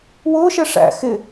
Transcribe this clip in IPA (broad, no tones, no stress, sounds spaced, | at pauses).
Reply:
w ʊː ʃ ɛ ʂ æ̰ x ɪ